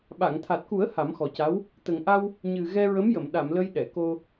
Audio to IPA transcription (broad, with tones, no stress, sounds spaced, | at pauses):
ɓ a˨˩˨ ŋ t̪ʰ a˨˩ t̚ k u˨˩˦ ə̯ h a˨˩˦ m x ɔ˨˩ c a˧˥ w | t̪ ə˨˩ ŋ ʔ a˧ w | ɲ ɨ˨˩ ɣ ɛ˧ ɹ ə˧˥ m j ə˨˩˨ m ɗ a˨˩˨ m l ə˧ j ɗ ɛ˨˩˨ k o˧